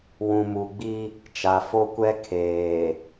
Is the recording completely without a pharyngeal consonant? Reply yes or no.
yes